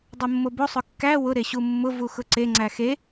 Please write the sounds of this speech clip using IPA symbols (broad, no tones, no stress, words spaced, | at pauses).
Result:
dˤʊmːobo sˤʊkːæ wʊ ɾeɕumːʊ vuxʊǀe ŋ͡ǀæxe